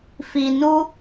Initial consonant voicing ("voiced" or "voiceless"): voiceless